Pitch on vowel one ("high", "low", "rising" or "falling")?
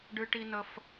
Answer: high